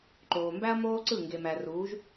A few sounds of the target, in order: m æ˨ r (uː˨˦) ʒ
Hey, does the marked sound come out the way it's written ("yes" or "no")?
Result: yes